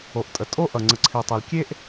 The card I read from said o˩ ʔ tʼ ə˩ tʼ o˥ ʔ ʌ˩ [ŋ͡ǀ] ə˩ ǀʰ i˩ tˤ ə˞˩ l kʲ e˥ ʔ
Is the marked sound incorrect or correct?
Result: correct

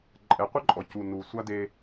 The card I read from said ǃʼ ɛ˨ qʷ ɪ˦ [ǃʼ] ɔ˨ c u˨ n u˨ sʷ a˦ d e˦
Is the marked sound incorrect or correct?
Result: correct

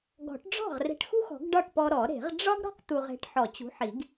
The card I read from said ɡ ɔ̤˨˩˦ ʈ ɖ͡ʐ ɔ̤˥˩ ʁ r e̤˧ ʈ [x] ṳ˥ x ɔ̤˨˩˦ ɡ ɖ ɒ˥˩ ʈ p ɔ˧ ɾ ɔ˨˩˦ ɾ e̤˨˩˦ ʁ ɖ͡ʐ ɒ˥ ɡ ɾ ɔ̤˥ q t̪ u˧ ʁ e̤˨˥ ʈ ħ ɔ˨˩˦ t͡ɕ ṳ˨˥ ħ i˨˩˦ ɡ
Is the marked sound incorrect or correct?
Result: correct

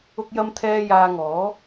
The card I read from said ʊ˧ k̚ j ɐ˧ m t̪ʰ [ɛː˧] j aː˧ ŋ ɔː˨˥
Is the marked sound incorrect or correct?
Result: correct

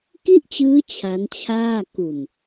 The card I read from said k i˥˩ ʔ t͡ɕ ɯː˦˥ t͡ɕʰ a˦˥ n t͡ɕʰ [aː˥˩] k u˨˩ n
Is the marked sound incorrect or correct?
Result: correct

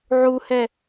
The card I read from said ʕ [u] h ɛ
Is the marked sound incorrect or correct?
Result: correct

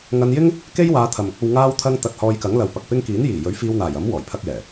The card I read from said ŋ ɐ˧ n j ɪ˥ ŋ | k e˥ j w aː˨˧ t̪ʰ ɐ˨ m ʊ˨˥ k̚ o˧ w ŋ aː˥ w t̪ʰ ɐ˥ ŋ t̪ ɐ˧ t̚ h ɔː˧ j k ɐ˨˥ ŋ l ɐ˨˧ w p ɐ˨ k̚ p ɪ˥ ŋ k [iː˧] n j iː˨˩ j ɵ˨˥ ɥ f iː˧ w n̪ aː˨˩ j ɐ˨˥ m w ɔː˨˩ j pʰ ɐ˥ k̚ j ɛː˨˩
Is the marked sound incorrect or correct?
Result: incorrect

